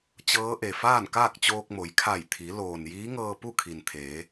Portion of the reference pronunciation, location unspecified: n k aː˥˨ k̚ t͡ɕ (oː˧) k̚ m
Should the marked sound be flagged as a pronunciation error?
no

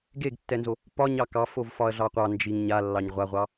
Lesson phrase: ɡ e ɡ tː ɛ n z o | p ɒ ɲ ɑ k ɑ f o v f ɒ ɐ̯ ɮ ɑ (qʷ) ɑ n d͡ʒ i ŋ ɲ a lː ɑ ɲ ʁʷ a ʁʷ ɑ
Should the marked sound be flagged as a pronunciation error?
no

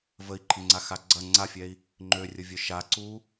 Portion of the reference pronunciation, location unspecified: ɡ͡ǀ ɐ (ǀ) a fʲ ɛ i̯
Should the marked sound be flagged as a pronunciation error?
yes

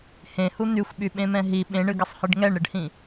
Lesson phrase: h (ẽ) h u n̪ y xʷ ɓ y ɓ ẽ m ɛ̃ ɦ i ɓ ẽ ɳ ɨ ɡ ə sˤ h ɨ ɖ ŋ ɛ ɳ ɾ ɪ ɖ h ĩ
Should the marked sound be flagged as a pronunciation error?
no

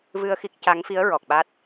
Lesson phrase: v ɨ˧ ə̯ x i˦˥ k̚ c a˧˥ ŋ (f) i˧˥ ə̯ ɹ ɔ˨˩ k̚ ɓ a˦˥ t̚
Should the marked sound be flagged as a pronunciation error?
no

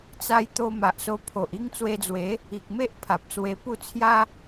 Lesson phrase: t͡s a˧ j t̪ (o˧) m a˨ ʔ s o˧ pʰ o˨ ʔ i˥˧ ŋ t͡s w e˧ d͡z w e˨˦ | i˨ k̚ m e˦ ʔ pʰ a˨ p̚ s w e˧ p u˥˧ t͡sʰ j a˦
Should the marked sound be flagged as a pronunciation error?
no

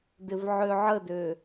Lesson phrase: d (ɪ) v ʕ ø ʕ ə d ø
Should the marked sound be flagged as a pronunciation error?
no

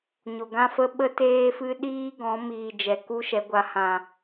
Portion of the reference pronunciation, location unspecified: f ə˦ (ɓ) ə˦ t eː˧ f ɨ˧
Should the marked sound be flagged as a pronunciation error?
no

